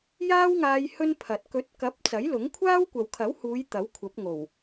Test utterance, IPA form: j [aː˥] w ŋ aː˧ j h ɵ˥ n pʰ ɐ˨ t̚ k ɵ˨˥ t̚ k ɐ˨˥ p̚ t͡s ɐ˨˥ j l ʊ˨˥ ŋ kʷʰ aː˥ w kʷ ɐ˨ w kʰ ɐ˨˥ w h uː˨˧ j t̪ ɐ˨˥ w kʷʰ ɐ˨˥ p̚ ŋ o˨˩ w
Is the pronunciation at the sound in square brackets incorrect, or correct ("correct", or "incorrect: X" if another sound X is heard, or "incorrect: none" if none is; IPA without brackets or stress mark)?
correct